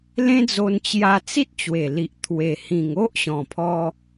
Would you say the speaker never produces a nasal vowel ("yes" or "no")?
no